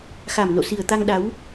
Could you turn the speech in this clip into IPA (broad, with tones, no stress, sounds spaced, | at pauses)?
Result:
x a˨˩ m n o̰˧˨ s i˨˩ ə̯ t̪ a˧ ŋ ɗ a˨˦ w